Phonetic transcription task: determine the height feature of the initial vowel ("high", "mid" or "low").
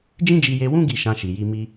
high